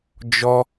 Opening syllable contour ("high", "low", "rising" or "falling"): high